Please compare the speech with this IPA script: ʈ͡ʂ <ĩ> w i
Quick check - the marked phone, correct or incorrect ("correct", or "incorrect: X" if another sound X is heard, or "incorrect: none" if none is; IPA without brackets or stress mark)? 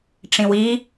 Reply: correct